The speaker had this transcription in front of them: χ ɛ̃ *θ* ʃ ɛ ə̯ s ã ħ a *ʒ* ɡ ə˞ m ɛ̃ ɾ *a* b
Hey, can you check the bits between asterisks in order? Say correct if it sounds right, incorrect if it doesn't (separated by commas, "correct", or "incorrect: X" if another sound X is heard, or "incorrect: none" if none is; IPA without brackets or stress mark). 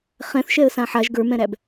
correct, correct, incorrect: æ